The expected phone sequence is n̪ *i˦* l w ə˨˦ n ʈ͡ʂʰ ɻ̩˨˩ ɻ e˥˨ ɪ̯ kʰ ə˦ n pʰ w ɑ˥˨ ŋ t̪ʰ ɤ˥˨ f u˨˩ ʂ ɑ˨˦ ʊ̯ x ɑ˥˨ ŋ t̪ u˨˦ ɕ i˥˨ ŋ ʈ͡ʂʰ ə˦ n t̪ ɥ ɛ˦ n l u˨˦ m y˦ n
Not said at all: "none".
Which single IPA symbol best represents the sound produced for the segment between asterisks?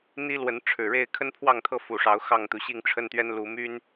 i˦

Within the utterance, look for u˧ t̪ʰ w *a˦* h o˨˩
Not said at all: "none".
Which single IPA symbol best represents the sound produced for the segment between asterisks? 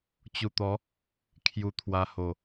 a˧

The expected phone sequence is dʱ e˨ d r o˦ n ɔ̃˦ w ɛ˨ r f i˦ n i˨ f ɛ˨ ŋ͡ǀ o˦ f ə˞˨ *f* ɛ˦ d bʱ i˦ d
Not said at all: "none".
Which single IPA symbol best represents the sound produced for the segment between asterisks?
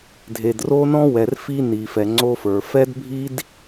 f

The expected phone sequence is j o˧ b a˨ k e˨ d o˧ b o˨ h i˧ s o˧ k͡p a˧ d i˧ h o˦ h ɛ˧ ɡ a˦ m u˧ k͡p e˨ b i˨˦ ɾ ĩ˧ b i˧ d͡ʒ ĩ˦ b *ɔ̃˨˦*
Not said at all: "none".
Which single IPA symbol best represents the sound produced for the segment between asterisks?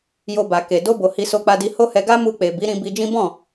ɔ̃˦˨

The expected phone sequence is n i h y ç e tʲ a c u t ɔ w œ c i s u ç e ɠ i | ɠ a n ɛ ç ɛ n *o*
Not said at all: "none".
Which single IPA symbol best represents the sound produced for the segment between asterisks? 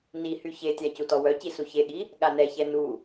u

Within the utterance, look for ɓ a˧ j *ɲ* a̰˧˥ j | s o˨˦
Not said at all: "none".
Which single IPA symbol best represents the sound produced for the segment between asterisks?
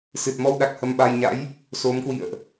ɲ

